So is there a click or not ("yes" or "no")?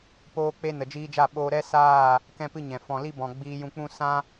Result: no